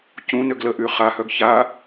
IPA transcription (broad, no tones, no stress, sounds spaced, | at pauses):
c ũ n ø ɡ l ə ʔ y χ a h œ ɡ ç a